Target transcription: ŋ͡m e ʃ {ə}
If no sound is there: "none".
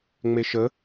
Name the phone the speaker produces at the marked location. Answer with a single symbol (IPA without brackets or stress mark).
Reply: ə